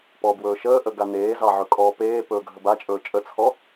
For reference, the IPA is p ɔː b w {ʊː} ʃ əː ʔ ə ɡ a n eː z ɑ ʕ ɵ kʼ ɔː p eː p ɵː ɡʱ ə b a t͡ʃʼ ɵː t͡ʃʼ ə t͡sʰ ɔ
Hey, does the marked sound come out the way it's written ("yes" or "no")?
no